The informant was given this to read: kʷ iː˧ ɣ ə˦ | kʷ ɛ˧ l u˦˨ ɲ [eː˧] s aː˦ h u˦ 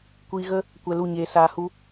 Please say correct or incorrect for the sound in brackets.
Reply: correct